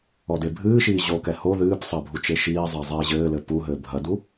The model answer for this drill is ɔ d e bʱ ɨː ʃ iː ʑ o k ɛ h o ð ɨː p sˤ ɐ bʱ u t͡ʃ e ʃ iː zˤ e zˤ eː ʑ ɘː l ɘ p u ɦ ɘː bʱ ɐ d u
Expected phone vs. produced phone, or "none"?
none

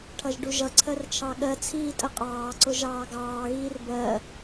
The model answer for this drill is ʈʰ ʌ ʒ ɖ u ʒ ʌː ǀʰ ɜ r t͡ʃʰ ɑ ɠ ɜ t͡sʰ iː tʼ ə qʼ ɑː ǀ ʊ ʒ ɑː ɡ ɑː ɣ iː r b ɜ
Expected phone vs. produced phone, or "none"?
ʌː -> ʌ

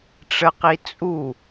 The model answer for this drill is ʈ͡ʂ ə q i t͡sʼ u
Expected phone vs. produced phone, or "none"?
none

